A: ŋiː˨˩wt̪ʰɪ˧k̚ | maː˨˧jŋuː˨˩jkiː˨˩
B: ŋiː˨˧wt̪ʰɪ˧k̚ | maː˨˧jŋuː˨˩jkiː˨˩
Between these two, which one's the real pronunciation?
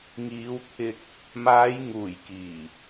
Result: B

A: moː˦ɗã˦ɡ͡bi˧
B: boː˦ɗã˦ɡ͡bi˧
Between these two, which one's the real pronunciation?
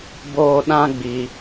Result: B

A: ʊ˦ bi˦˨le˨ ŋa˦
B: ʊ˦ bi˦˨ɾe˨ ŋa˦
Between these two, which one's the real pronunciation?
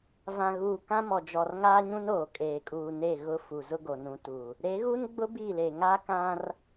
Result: A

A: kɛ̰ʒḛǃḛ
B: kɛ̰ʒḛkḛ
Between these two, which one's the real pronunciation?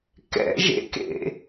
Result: B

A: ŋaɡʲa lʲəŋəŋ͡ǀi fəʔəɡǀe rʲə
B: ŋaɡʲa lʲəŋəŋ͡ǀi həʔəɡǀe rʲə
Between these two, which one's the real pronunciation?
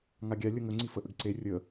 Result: A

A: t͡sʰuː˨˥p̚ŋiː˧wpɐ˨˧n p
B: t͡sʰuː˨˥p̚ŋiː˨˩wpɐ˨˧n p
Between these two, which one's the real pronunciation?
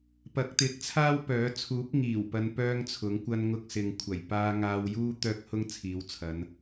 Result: B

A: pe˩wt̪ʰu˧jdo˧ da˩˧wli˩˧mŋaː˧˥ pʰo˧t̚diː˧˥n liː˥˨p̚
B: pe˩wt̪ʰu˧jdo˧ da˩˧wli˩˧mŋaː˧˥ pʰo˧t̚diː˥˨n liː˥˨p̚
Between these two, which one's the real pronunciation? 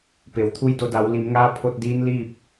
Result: A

